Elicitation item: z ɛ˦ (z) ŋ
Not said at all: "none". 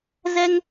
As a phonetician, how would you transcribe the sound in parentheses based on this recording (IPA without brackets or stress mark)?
none